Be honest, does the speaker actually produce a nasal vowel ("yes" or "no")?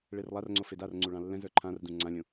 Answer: yes